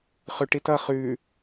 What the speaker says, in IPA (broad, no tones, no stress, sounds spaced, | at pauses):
χ ʉ ʈ i t ʌ χ ʉ